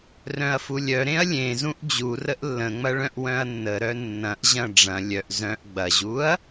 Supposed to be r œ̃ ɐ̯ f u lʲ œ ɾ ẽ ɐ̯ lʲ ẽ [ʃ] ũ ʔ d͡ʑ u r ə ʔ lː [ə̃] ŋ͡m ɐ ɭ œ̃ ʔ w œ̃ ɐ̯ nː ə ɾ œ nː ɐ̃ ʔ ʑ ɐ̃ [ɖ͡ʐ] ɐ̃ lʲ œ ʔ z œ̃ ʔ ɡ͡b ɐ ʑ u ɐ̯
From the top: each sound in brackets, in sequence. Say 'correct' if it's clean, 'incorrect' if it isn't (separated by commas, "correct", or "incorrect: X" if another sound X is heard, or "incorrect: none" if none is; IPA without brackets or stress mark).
incorrect: z, correct, correct